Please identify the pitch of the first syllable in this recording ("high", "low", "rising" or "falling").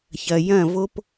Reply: low